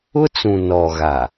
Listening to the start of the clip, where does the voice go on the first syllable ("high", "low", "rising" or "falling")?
high